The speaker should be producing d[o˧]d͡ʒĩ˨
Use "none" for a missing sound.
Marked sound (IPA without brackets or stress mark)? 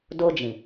o˧